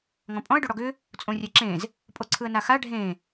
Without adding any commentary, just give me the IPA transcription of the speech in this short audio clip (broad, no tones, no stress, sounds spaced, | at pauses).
ŋ ɔ̃ pʼ ɔ̃ ə̯ ɖ o ɽ ɔ ɡ ʏ | t͡sʼ õ rʲ æ ǁ ẽ z | pʼ o ǀʰ ɯ ə̯ n a x a ɖʱ ẽ